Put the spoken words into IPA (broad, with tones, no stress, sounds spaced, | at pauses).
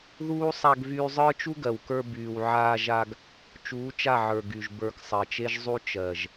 ð uː˦ sˤ a˧ ɡ v yː˧ zˤ ə˞˦ t͡ʃ u˦ ɡ ɜ˨ w k ə˞˧ b yː˨ w ʕ aː˧ ʒ a˧ ɡ | t͡ʃ uː˨˦ t͡ʃ a˦˨ ʕ ə˞˨ ɡ y˨ ʒ b ə˞˨ k sˤ ɜ˨ t͡ʃ e˦ ʒ zˤ u˦ t͡ʃ ɜ˨ ʒ